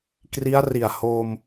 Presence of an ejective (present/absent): absent